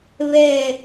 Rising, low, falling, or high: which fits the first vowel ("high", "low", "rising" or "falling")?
falling